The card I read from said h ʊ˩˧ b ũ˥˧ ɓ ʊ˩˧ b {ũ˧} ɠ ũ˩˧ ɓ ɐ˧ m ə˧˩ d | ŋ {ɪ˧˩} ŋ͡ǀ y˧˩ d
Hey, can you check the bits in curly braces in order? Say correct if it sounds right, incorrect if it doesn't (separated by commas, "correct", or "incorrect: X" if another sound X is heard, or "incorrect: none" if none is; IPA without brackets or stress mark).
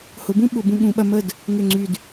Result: correct, incorrect: ʏ˧˩